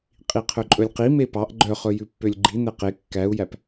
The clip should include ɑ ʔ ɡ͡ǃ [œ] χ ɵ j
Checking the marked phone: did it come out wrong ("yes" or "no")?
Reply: no